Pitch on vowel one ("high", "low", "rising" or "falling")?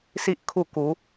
high